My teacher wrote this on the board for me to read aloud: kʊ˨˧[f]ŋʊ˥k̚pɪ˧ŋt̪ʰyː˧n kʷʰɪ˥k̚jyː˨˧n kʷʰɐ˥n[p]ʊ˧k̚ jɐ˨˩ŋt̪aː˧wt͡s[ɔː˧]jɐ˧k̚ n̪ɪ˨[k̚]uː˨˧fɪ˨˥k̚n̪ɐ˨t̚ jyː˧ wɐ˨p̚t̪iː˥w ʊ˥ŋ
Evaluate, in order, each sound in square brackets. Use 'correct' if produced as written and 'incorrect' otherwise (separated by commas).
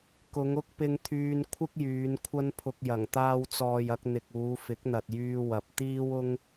incorrect, incorrect, incorrect, correct